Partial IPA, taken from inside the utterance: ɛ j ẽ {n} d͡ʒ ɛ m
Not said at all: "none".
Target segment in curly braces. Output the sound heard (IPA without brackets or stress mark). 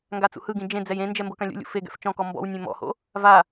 n